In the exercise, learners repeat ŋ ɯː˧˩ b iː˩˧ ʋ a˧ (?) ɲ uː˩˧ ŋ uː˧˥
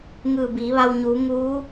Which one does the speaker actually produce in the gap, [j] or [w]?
w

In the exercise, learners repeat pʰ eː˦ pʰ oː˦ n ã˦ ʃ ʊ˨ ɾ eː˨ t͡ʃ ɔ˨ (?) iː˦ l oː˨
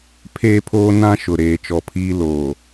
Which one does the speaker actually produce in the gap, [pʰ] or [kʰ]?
pʰ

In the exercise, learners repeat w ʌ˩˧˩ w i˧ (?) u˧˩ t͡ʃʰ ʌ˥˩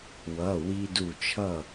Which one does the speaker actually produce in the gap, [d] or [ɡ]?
d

